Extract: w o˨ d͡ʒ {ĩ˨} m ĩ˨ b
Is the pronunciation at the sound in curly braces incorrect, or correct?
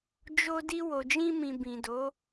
incorrect